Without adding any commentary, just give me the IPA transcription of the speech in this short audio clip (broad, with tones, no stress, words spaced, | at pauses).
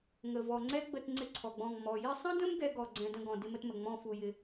ŋə˨vɔ˨ ŋ͡ǀɛ˥ɡ͡bə˦˨t ŋ͡ǀɪ˥ǀʰɔ˨ɡ͡bɔ̃˦˨ŋ mɔ˨ jɪ˦˨sˤə̃˥də̃˥m ɡɛ˥ɡɔ˦˨ɡ͡ǀɛ̃˦˨ də̃˦˨ɡɔ̃˨ dɪ˥mə˥tmə˨ ŋ͡mɔ̃˦˨ fu˨jɪ˨